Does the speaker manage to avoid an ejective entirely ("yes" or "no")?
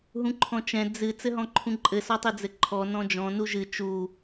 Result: no